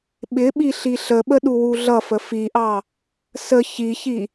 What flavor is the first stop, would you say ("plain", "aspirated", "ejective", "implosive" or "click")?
implosive